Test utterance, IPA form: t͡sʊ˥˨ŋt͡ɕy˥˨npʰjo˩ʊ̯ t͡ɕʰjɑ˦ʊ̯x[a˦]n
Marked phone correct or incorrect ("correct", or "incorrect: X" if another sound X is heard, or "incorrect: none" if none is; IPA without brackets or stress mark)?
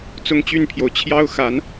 incorrect: a˨˦